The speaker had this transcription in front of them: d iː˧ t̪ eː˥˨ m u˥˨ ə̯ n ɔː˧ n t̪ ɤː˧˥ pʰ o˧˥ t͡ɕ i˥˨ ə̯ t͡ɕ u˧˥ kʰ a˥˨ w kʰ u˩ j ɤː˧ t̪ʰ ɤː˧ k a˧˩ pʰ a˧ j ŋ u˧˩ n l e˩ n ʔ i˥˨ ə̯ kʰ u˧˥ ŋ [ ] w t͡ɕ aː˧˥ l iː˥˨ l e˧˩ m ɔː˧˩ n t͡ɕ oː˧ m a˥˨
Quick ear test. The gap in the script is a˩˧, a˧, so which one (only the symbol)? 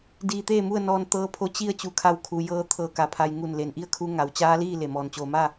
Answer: a˩˧